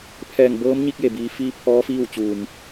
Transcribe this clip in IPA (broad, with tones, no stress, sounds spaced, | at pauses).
pʰ ɛː˧˩ ŋ b ɤː˧˥ m ɲ i˧ k̚ j e˩ b iː˩˧ f iː˧ pʰ ɔː˧˥ f iː˥˨ w t͡ɕ uː˩ m